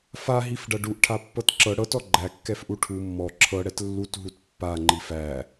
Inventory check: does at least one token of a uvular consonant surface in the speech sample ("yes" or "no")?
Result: no